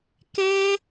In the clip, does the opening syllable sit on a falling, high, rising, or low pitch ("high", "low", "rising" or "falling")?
high